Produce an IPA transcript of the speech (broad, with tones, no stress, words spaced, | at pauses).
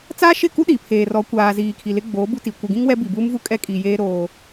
t͡saː˦ʃɪ˦˨ku˦ ɗiː˨pʰeː˨rɔ˨˦ kʷaː˨ziː˨ kʰi˨lɪ˦ɡ͡boː˨˦ bu˦ti˨ kʷɪ˨ɡĩ˦ŋ wɛ˦ bi˨buː˦m vu˦kʼɛ˦kʼi˨jeː˦ ɾoː˦